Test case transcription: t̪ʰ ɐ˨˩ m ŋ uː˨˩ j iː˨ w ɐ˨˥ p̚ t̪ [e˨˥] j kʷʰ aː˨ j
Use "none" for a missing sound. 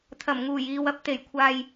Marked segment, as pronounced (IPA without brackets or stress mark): e˨˩